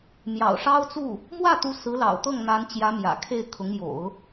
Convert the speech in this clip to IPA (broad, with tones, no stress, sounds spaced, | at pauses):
m j ɑ̰˨˩ ʊ̯ ʂ ɑ˥ ʊ̯ t͡s u˥˩ | m w ä˥˩ t̪ u˧˥ s ɹ̩˧˥ l ɑ̰˨˩ ʊ̯ t̪ ɤ˥˩ ŋ n̪ a˧˥ n t͡ɕ j ä˧˥ m j ä̰˨˩ kʰ e˥˩ ɪ̯ kʰ ʊ˧˥ ŋ j o̰˨˩˦ ʊ̯